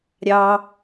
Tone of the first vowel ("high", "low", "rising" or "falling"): low